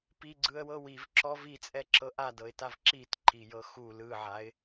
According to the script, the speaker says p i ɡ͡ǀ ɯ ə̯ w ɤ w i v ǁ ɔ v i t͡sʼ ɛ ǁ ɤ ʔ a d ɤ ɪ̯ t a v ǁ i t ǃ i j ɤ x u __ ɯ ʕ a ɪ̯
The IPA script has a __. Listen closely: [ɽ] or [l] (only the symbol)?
l